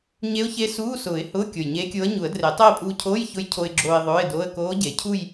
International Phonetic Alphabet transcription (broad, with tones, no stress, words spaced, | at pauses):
ɲe˧˥ʊ̯çe˧˥ suː˧˥˧sʊː˨˩˦ɪ̯hʊː˧˥˧ kʲo˨˩jɲeː˧˥kʲoː˧˥ə̯ ɲu˨˩˦ə̯dre˨˩˦tˤeː˥˧ pʼuː˧cʰoː˧˥˧j çʊ˧˥j cʰo˧ɪ̯ɡ͡ǁoː˧ɪ̯ ðˤʊː˧˥˧ɪ̯do˧˥˧ə̯ koː˧˥ɟe˨˩˦cʰu˥˧j